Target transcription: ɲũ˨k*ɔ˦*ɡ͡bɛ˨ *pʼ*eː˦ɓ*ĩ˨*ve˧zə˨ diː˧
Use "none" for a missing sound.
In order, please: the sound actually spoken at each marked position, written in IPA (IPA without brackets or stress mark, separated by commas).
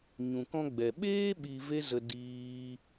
ɔ̃˦, ɓ, i˨